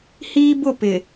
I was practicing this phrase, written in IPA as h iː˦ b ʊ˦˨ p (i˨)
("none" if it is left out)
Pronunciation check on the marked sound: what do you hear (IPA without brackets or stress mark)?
ɪ˨